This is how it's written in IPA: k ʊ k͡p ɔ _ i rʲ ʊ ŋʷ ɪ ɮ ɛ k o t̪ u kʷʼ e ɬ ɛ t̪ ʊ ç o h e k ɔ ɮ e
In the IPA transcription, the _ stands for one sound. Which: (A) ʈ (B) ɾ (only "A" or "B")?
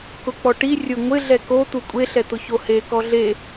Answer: A